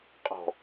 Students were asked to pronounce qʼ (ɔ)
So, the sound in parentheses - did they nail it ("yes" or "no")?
no